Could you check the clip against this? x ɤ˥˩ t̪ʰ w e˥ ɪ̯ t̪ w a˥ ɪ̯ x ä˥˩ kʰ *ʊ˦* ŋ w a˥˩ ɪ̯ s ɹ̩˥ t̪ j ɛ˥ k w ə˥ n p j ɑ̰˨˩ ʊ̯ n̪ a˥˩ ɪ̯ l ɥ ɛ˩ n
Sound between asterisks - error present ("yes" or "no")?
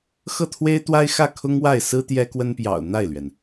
yes